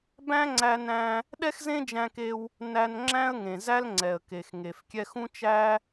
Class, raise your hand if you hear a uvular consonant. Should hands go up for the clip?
no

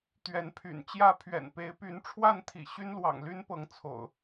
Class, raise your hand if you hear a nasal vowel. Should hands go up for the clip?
no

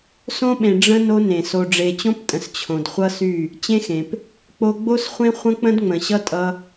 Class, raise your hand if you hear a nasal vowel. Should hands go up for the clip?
yes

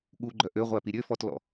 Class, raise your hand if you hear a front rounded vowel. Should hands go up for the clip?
yes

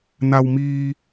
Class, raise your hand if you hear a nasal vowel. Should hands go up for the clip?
no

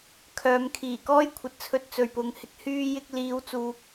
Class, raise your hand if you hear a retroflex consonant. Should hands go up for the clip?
no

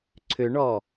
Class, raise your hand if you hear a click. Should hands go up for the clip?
yes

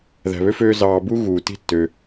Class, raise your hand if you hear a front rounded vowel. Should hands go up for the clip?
yes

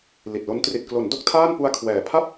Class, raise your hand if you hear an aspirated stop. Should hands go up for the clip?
yes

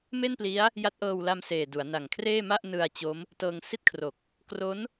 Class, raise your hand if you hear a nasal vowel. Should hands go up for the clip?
no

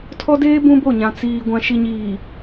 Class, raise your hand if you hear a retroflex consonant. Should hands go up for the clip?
no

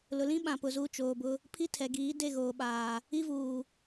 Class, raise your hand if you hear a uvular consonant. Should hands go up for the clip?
no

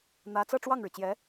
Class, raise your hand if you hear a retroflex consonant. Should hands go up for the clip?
yes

